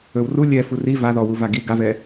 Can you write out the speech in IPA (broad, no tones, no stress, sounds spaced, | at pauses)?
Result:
ɵ w r u lʲ ɛ f u r i v a ð ɔ w u v a ɡ i ɡ a v ɛ